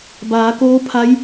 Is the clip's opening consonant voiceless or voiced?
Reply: voiced